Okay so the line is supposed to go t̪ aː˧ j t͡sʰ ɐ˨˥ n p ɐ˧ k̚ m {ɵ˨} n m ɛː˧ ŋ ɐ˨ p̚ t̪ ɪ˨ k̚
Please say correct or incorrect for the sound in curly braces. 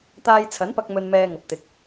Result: incorrect